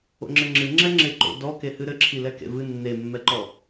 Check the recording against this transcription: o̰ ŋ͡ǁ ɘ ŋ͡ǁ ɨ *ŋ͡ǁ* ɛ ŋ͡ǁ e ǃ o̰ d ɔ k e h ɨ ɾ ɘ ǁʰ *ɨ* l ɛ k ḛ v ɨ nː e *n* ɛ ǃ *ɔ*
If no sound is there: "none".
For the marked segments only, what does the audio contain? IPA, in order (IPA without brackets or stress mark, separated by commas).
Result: ŋ͡ǁ, i, mː, ɔ